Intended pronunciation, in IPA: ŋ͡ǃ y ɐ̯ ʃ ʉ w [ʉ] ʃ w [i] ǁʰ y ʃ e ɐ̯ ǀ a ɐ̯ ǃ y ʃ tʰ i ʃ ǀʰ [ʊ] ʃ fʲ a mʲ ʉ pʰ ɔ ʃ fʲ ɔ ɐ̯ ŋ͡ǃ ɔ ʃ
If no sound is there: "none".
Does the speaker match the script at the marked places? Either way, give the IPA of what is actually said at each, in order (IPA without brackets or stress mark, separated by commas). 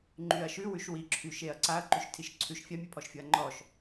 ʉ, i, ʉ